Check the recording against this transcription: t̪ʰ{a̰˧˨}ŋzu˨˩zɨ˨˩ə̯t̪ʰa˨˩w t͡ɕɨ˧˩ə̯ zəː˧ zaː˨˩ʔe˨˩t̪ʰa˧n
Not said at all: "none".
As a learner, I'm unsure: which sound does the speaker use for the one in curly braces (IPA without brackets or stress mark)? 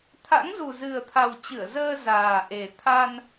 a̰˧˥